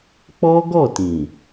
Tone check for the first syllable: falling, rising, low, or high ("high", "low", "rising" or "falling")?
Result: high